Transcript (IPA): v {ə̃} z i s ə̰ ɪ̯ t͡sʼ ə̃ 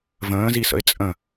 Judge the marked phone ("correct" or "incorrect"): incorrect